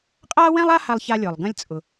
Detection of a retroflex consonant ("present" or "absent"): absent